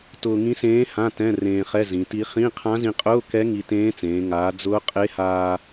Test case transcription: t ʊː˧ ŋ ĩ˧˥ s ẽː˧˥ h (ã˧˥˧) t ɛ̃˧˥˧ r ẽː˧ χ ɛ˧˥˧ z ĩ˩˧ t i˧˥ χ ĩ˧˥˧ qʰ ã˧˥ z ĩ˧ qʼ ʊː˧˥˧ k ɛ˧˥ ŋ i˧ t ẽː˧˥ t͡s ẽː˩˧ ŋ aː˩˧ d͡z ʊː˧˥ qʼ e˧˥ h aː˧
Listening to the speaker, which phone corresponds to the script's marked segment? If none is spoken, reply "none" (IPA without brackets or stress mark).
ã˧˥˧